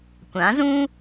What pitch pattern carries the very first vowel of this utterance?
rising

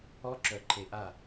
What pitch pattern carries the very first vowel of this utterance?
high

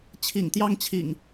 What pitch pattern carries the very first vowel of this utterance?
low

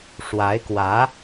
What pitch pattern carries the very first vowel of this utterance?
rising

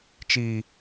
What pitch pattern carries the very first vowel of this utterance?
low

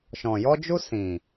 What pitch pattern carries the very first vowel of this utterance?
low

